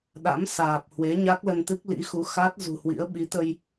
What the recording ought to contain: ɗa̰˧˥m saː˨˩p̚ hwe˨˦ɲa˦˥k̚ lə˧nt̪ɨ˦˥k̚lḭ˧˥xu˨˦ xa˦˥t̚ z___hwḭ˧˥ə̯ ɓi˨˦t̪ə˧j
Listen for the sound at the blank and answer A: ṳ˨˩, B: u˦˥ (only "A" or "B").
A